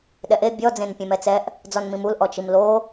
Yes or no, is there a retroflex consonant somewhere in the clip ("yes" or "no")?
no